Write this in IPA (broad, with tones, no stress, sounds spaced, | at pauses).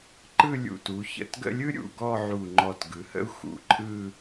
ǃ ɯ˥˧ lʲ ṵ˧˩ t u˩˧ ç ə̰˧˩ t ɡ ə̰˥˧ lʲ ɯ˥ ɾʲ ṵ˩˧ ɡ ɔ˥˧ ʕ u˧˩ ŋ͡ǃ ɔ˧˩ t ɡ ɯ˩˧ h ə̰˥ u̯ x ṵ˧˩ ǃʼ ɯ˥˧